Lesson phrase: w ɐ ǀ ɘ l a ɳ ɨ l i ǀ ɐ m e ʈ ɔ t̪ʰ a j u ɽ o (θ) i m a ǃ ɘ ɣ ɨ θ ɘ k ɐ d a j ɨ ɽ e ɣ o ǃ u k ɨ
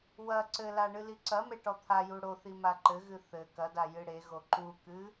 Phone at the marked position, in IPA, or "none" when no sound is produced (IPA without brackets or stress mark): θ